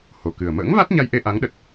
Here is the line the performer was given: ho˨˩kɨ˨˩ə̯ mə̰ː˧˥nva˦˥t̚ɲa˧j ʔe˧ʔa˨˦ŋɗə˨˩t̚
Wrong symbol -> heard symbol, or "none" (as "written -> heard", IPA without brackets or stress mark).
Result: n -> ŋ